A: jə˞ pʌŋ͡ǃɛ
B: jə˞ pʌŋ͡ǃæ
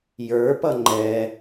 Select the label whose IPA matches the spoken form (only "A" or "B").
A